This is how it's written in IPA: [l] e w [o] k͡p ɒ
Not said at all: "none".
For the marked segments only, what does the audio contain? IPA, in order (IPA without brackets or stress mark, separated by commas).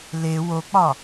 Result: l, o